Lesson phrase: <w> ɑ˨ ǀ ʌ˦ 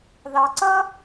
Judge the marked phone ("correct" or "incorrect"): incorrect